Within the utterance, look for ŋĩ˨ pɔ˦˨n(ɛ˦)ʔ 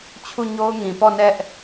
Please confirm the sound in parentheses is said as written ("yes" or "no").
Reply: yes